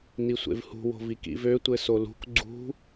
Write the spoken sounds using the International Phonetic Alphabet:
nisʷḛvhṳ wo̤vikḭvø tʷɘsolṳk ɡ͡ǀṳ

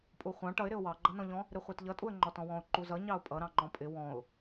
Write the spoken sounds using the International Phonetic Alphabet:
pʼuχʷɑ̃ ʈʌɪ̯ɾɪʊ̯ wɑɡ͡ǃʌnɔ̃ʎɔ̃ | ɾɪχʷætʎʌtʼuə̯ ŋ͡ǃɔtɔ̃wɔ̃ʊ̯ ǃuzʌ ɲɑʊ̯pʼʌ ɾɑ̃ŋ͡ǃɔ̃pʼɪ wɔ̃ʊ̯

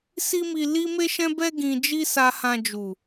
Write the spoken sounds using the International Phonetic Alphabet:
si˦mi˧ li˦me˦ʃɛ̃˦bɛ˦ ɡĩ˦ d͡ʒi˦sa˧hã˧d͡ʒu˨

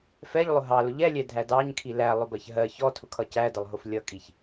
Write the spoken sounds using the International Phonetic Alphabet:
fɛʎlˠʊ ɦɑlʊ ʎɛlʲɛdʱæ dɑɲkʰi lælˠʊbɜç ɦɜ çɔtʰʊkʰʌ cædəlˠɦʊf lʲʌkʼiç

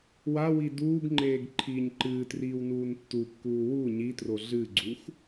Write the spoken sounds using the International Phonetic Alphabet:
wawi duːɡŋ͡ǃeːɡ ǃʰiːɲǃɨːtriːw nuːntːukːuː wu ɲitro ɮɨɡ͡ǀux

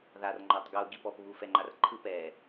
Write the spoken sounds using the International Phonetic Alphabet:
ðar ŋ͡ǃɔtˤɡu ɡipɔp βufɛŋ͡ǃarǃʰɯp ɛ

